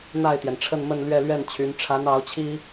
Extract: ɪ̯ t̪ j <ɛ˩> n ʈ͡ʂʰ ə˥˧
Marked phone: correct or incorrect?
correct